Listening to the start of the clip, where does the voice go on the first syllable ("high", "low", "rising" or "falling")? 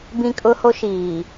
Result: high